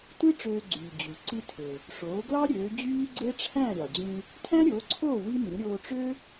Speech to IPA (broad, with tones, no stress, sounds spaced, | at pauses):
t ɯ˥ ʈ͡ʂ øː˧ ɡ͡ǀ yː˩ d͡ʑ y˩ ǀ i˧ tʰ ø˩ | ʂ oː˩˥ ɡ l ɑ˥ ɾʲ øː˩˥ d͡ʑ yː˥ ɡ͡ǀ e˥ ʈ͡ʂʰ æ̃˥˩ ɾʲ ɑ˩ d͡ʑ ĩ˧ | tʰ æ̃˥ ɾʲ oː˩˥ ǀʰ oː˥˩ w i˥ m ĩ˩˥ ɾʲ oː˧ ʈ͡ʂ ø˥